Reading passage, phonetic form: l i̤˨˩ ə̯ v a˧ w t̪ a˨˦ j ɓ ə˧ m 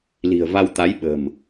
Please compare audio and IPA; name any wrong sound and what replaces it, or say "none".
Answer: ə˧ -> ə̤˨˩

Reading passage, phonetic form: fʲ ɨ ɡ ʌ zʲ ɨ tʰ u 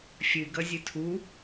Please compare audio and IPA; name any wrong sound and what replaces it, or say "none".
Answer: none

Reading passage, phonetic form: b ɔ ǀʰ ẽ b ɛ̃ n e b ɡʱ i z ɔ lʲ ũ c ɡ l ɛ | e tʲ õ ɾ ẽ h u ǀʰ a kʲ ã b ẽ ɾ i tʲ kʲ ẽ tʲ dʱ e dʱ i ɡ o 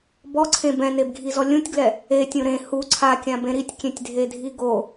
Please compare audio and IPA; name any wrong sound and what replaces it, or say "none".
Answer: c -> tʲ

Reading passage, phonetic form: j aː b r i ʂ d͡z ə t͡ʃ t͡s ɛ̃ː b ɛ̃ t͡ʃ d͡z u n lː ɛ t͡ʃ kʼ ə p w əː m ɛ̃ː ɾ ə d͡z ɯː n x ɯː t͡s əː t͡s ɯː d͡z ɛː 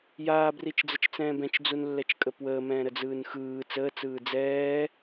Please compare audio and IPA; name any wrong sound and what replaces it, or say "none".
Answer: ʂ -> t͡ʃ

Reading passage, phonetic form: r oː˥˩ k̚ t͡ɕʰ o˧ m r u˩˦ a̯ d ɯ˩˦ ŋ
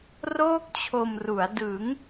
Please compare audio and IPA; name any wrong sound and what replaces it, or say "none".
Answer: none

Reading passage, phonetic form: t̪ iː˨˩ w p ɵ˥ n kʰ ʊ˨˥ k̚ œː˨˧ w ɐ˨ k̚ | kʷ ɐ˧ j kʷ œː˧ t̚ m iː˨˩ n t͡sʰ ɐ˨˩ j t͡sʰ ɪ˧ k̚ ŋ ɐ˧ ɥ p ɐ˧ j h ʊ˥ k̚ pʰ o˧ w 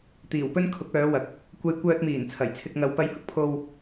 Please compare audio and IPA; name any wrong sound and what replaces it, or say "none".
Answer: ɥ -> w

